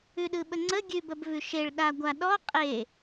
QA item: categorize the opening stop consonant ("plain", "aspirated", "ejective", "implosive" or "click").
implosive